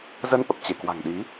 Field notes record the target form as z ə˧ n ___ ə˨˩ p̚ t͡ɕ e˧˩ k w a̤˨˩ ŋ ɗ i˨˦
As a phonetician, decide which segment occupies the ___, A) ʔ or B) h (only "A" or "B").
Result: A